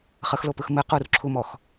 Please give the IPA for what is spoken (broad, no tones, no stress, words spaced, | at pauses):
χəxlopɯx mɨ qurǁʰumɔx